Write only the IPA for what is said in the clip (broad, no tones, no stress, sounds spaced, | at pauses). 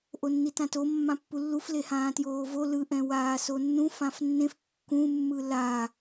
ʔ o nː i t ã t o mː ã pː u lː u f l e h ãː t j oː v o l ɯ ʔ ɛ̃ w aː s o nː ũ f ã f nː ẽ f kː ũ mː ɯ l a